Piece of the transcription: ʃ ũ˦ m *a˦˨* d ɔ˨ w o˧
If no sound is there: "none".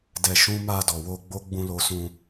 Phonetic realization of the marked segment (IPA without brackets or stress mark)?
a˦˨